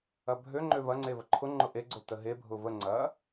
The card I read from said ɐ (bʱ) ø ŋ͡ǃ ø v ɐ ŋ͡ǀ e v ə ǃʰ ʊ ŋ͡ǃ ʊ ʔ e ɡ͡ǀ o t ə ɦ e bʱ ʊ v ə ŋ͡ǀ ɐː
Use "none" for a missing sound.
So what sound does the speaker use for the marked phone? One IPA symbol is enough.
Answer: bʱ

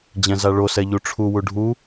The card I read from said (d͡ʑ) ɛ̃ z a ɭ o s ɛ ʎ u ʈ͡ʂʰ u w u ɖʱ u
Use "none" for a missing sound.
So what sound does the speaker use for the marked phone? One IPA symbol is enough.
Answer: d͡ʑ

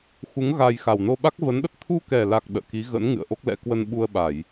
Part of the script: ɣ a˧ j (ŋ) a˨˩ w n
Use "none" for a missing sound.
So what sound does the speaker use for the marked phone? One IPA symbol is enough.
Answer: x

